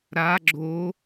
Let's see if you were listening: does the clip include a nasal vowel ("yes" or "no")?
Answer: no